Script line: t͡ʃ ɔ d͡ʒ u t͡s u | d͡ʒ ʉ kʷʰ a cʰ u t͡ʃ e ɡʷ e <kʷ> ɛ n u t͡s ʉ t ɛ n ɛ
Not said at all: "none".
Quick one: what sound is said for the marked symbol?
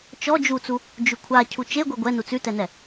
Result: ɡʷ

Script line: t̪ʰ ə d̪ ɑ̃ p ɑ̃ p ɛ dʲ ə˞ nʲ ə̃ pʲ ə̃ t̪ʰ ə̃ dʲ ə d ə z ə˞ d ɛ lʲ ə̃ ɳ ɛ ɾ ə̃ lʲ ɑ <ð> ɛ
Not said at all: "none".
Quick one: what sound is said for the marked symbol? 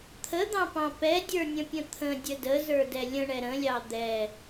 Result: d̪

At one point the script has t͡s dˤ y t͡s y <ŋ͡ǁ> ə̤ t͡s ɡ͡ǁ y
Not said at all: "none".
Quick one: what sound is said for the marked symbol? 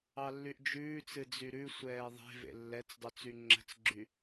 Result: ŋ͡ǁ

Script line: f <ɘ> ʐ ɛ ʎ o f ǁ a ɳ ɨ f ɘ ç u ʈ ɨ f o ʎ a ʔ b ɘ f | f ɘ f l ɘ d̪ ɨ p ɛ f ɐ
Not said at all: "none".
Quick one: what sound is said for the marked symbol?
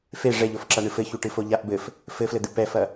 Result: e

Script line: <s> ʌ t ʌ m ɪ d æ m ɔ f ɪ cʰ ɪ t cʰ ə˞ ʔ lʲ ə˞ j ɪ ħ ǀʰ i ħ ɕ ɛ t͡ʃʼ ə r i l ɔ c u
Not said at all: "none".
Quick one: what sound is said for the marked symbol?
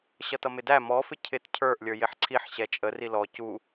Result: ɕ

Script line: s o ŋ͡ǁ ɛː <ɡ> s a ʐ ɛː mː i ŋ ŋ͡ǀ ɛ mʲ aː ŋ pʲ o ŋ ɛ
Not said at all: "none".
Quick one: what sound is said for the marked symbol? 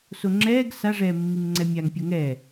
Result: ɡ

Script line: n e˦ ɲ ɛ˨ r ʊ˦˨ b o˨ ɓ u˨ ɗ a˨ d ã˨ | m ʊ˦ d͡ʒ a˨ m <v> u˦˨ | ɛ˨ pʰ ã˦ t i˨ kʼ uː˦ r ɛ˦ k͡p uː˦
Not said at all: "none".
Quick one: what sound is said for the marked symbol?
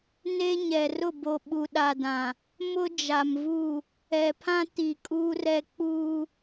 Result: v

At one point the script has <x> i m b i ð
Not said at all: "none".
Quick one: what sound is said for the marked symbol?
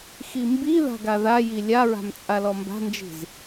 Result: x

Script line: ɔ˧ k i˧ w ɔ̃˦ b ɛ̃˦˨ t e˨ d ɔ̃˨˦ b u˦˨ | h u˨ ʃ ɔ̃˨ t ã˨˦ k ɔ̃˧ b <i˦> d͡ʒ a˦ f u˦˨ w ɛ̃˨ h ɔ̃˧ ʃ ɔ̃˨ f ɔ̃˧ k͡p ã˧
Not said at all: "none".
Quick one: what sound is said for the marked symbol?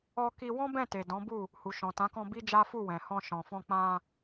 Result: i˦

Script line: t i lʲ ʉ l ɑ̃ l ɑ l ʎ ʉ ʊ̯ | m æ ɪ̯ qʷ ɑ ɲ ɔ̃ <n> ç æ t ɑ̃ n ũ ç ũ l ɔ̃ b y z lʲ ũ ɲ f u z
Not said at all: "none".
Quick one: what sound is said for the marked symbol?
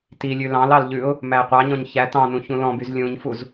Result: ɲ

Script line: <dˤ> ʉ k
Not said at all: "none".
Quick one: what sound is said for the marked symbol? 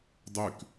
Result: dˤ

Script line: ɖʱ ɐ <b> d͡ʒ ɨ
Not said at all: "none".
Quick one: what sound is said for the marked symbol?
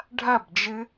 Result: b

